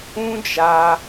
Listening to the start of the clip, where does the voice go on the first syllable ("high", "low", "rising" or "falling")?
high